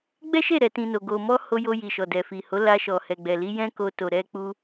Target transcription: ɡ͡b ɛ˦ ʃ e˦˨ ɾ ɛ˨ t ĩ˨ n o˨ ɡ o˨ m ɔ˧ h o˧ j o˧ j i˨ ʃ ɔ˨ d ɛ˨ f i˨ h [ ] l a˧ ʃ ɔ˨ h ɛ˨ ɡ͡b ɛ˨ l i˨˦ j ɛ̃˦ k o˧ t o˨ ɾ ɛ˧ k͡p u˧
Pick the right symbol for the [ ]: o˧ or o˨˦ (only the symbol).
o˨˦